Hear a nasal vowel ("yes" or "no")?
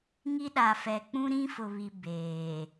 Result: yes